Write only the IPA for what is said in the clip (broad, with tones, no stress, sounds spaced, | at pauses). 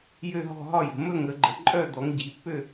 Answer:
j ø˥˧ ɦ ɔ̤˥˧ ɦ ɒ˥˧ j ə̤˨˦ m ɵ˥˧ ŋ ə˨˦ ɡ͡ǃ ə˨˦ ǃʼ œ˥˧ d̪ ɔ˨˦ ŋ ɟ i˨˦ pː ø˥˧